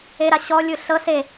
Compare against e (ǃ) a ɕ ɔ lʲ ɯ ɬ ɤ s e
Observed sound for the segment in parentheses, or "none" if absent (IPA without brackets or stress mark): ɾ